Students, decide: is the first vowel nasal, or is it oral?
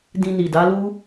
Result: nasal